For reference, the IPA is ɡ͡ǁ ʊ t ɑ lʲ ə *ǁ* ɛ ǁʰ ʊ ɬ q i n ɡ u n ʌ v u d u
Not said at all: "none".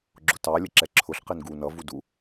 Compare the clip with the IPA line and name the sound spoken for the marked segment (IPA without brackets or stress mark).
ǁ